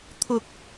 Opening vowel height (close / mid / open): close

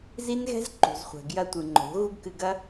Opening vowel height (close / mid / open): close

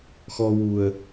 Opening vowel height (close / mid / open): mid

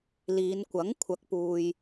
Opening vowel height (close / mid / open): close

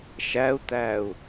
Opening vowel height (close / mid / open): open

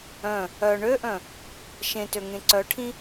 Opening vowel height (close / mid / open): mid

